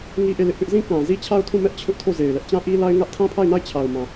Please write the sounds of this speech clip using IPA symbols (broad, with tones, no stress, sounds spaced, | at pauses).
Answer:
ŋ i˦ ʔ e˦˨ l ɪ˦ ʔ p ɪ˦ ʔ z ĩ˦˨ k ã˨ z i˦ t͡ɕʰ a˦ ʊ̯ tʰ ũ˦˨ m ɛ˦ ʔ t͡ɕʰ ʊ˦ ʔ tʰ o˦˨ z e˨ ɪ̯ l ɛ˦ ʔ t͡ɕ ã˦ ʔ i˦ l a˦ ɪ̯ ŋ ä˦ ʔ tʰ ã˦ pʰ a˦˨ ɪ̯ n a˦˨ ɪ̯ t͡ɕʰ a˨ ʊ̯ m ã˨